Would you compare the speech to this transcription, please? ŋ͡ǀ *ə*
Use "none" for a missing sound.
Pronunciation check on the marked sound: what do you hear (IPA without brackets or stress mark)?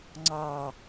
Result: ɑ